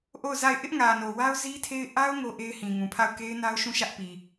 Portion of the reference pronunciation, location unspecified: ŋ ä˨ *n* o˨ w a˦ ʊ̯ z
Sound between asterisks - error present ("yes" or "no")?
no